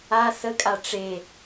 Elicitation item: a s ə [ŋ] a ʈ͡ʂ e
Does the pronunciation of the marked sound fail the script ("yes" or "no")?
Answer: yes